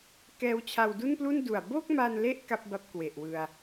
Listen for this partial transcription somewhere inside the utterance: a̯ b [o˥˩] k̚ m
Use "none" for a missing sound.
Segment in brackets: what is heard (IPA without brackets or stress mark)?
o˥˩